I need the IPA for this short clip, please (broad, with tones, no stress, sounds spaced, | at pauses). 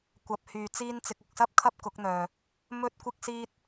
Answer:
kʷ ɐ˨˥ p̚ h yː˨ t͡s iː˥ n t͡s ɪ˨ k̚ ʊ˨ k̚ s ɐ˥ p̚ kʰ ɐ˥ p̚ k ʊ˨˥ k̚ n̪ œː˨ | m ɵ˥ t̚ kʷ ɪ˥ k̚ s iː˥ t̚